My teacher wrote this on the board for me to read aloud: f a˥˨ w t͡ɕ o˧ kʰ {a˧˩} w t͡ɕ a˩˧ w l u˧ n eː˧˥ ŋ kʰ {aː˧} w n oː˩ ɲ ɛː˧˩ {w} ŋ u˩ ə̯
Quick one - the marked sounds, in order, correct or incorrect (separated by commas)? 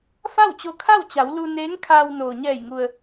incorrect, correct, incorrect